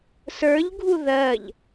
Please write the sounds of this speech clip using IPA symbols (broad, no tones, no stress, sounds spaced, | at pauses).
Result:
s ə˞ ʎ ɡʱ u ð ɜ ʎ